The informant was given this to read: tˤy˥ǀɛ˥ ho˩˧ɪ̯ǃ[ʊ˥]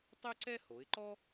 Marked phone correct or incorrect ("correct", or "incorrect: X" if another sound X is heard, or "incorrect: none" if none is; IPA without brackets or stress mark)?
incorrect: ɔ˥